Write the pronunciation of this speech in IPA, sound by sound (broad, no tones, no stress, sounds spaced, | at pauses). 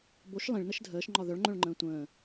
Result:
b o ʃ lˠ ĩ ɭ n ə ʃ dʱ əː ʃ ŋ͡ǃ ɒ ð œ ɭ ŋ͡ǃ œ̃ ɭ ŋ͡ǃ ə̃ː tʷ ə̃ː